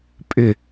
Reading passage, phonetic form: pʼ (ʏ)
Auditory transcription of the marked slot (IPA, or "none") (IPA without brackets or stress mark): ʏ